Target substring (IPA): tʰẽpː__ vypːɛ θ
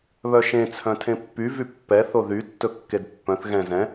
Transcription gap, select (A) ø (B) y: B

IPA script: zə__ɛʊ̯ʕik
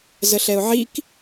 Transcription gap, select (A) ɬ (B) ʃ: A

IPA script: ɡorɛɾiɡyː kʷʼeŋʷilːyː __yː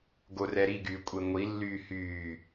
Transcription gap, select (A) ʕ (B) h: B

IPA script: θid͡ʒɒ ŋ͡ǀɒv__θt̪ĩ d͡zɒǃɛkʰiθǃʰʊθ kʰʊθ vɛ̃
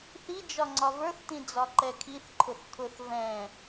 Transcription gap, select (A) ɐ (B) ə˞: B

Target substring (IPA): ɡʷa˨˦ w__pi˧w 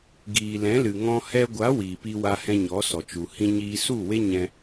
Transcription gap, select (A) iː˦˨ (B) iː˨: B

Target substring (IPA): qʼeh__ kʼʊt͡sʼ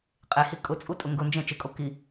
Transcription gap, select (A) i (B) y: A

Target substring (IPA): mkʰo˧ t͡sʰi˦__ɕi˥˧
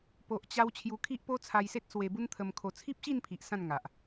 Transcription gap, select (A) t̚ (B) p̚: B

